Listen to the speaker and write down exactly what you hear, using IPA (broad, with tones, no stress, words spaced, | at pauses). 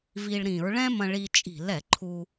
vi˧ɭ ɾĩ˧˩˧ɹɭɛ̃˥mɐ̃˧ɭi˧ t͡ʃʼi̤˧˩˧lɛ˧˩˧ǃʰu˧